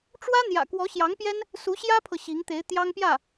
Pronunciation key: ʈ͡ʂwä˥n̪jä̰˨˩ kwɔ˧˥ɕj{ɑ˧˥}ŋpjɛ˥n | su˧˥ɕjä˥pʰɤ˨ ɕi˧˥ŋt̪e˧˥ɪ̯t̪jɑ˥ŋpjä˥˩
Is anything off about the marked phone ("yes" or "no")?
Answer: no